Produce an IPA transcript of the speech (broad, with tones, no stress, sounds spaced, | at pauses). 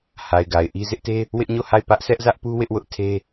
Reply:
h a˨ ɪ̯ ɡ a˨ ɪ̯ ʔ i˦ z ɪ˦ ʔ t e˦ | w ɪ˦ ʔ ɲ o˦˨ h a˦˨ ɪ̯ p ä˦ ʔ sʰ ɛ˦ ʔ z ä˦ ʔ p u˦ w ɪ˦ ʔ w ʊ˦ ʔ tʰ e˦